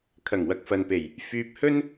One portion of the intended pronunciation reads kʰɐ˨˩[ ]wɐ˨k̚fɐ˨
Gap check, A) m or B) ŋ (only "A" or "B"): B